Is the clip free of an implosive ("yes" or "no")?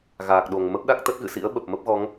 no